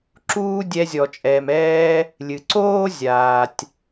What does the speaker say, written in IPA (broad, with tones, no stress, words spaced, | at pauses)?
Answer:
ǁuː˦dʲɛ˧zʲɔ˨t͡ʃʼɛː˨m ɛː˧ | lʲɨ˨ǀoː˦ zʲaː˨tʲ